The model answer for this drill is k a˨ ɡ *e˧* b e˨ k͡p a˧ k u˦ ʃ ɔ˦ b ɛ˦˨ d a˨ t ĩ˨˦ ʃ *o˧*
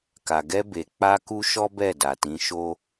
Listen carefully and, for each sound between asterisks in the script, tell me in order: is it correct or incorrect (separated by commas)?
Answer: incorrect, incorrect